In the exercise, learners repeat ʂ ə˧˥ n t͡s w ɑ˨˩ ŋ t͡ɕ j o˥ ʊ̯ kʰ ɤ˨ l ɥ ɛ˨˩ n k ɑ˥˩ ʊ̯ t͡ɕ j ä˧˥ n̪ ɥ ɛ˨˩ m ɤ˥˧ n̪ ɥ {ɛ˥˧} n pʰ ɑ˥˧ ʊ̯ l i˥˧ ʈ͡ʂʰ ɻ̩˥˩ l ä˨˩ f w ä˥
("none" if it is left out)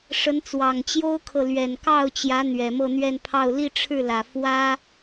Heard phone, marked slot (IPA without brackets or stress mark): ɛ˥˧